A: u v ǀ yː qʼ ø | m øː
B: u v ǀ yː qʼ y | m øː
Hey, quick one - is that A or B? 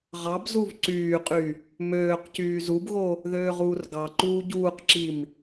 B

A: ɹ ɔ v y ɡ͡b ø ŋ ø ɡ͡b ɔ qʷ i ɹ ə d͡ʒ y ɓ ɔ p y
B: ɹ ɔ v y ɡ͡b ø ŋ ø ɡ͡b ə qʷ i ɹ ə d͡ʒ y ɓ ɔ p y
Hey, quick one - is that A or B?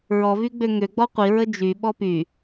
A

